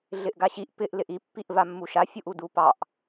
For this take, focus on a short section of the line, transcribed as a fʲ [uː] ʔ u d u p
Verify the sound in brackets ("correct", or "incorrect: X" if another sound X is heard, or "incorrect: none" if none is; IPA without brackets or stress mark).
incorrect: u